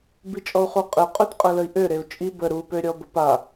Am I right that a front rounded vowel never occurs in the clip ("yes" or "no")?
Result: no